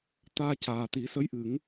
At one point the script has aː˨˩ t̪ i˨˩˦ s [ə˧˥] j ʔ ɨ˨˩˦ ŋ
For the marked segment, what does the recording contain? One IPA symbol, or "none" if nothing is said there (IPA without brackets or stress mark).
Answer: ə˧˥